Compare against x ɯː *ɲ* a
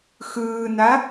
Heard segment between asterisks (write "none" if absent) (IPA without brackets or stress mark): n